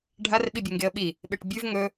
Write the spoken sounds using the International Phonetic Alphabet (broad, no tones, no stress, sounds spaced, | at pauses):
ɖʱ a r ɓ i bʲ e ŋ ɡ e ə̯ ɓ i | ɓ e ʈ bʲ ʉ v ŋ ɵ